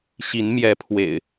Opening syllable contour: rising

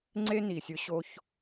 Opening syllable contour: high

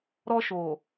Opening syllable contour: high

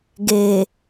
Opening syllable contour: low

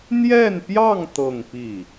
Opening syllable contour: falling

